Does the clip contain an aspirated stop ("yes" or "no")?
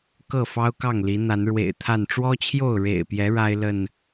yes